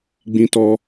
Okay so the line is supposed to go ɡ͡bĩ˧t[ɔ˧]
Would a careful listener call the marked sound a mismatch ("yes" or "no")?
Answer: no